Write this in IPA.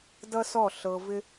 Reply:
d ʌ˦ s ɔ˦˨ ɬ ɤ˧ v ɪ˦

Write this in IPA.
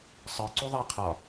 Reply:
sˤ ɨ ǀ u ðˤ ɛ qʰ ɒ

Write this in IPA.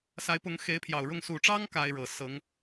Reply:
s a˧˥ ɪ̯ p ʊ˧˥ ŋ x e˧˥ ɪ̯ pʰ j ɑ˨˩ ʊ̯ ɻ ʊ˥˩ ŋ s u˨˩ ʈ͡ʂ ɑ˥ ŋ k a˥ ɪ̯ ɻ ɤ˨˩ s ɤ˧˥ ŋ

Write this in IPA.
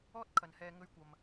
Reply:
ɔː˥ t̚ kʰ ɐ˨ n h ɛː˧ ŋ ɵ˧ ɥ kʷ ɐ˨ m

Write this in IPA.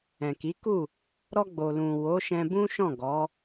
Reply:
ɛ̃˨ k i˨˦ k u˦˨ | ɾ ɔ˧ ɡ͡b o˨ l ũ˨ w o˨˦ ʃ ɛ̃˧ b ũ˦ ʃ ɔ̃˦˨ ɡ ɔ˨˦

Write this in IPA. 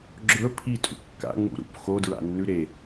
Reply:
ɡ͡ǁ ɵ pʰ i tʼ ṵ kː a̰ ŋ͡m ṵ ɾ ṵ p x o d ɹ a̰ nː ʉ ɾ e

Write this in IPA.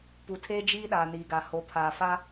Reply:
p u˨ tʰ eː˦ d͡ʒ iː˦ ɗ aː˨ n iː˨ ɡ a˨ h o˨˦ pʰ aː˨ f a˦

